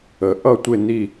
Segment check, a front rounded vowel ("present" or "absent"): absent